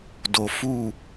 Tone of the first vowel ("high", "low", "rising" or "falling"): low